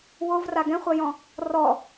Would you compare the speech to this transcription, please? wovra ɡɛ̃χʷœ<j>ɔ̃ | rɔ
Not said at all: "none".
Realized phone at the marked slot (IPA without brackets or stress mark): j